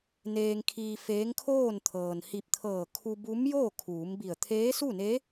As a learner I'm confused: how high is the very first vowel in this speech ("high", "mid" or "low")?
mid